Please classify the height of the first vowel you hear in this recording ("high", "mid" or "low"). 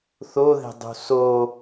mid